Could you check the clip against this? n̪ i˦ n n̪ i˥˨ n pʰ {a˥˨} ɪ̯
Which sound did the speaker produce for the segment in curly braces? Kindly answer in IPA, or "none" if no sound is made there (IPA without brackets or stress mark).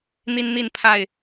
a˥˨